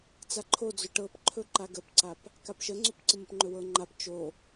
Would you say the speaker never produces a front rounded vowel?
no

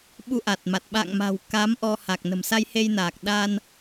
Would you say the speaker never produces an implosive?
no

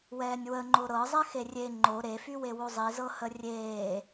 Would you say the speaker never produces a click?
no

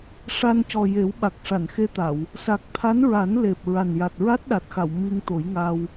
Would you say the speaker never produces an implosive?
no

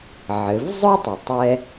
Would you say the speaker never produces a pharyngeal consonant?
no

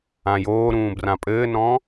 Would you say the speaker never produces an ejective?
no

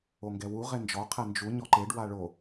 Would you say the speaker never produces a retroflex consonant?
no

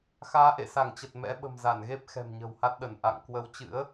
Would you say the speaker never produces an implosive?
no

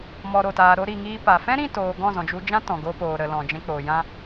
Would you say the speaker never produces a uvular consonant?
yes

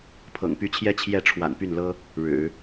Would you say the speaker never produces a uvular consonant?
yes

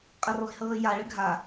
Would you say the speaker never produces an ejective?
no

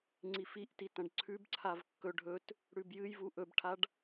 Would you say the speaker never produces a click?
no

